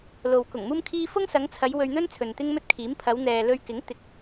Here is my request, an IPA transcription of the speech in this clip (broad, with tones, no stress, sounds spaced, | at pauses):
l o˨ w k ʊ˨˩ ŋ m uː˥ m kʰ iː˥ f ʊ˥ ŋ s ɐ˨˧ ŋ t͡sʰ ɐ˨˧ j w ɵ˧ ɥ n̪ ɵ˥ n t͡sʰ ɵ˨ n t̪ ɪ˥ ŋ m ɵ˥ t̚ kʰ iː˨˥ m pʰ ɐ˨˧ w n̪ ɛː˨ l ɵ˧ ɥ k ɪ˨˥ ŋ t̪ ɪ˨ k̚